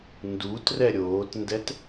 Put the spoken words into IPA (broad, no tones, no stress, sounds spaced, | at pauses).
n d u t r ɛ ɾʲ oː t n d ɛ t